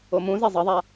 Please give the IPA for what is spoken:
omũze zˤʌðˤa

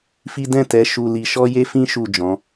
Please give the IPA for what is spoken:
fi˦ dɛ̃˦˨tɛ˨˦ ʃu˧li˧ ʃɔ˦je˦fĩ˦ ʃu˦˨d͡ʒɔ̃˨˦

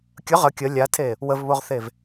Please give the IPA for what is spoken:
kʲə ʁə kʲə lʲatʰe | wəvβoʁθev

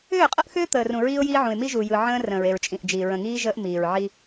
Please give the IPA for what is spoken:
ʏː˦˨qʼə˦ʔxʏː˦ t̪əː˨r ũ˨ɹiː˦ʊ̯jiː˦ʕũ˨ɪ̯ mi˦ʒu˨jɯ˨ ʕə̃ː˦ rə̃ː˨ɹe˨ɹt͡ʃʼĩ˨ʔd͡ʒiː˨ ɹə̃˨ŋiː˦ ʒəː˦ʔmiː˨ɹʕi˦

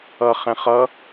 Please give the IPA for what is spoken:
ʌχɛ̃ χʌ

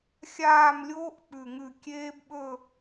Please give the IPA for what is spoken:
xʲaː˥˨mlʲoː˦˥ʔ k͡pʉ˧˩ŋʉ˧˩ kʲeː˦˥bɓɵ˥˨

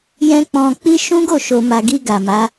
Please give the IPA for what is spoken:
jɛ̃˦ k͡pɔ̃˧ k͡pi˦ ʃũ˦ɡo˦˨ ʃo˨ma˨ɡi˧ ɡa˨ma˨˦

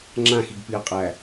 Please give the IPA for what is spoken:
ŋ͡ǁãxiɡpiɐ̯qʼæ

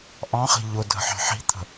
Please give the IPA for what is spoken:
ʔɑ̃χi̤ ʎʊ dʱə̤ħɑ̤ħi̤t̪ʰə̤

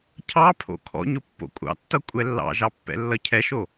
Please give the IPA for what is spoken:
cʰɑpʰo̰ kʰɔ̰ɲʊ pːo̰kʷʼɑ̰tːʌ kʷʼɛlːɑ̰ʒɑ pːɛ̰lːʌcʰɛʃo

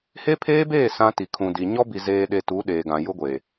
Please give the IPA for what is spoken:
he˦pʰeː˦beː˦˨ sã˦ti˨ kʰũ˨di˨ ɲɔ˦bi˨ zeː˨ɗe˨ tu˨˦ ɗeː˨ɡã˨ jʊ˦ɡʷe˨

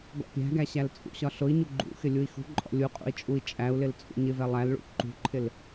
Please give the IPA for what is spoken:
ɡɔ̰pʲæ̤ɡæ ɕælt͡sʼṵɕɒ ɬʊi̯ɲu ɡ͡ǃṵxɪ lʲui̯xṳǃʼɔ̰ lʲuqʼṵi̯ t͡ʃʼui̯t͡ʃʼæu̯lɪl t͡sʼṵɲɪvɛ lˠælɭṵ ǃṳǃʰɪl

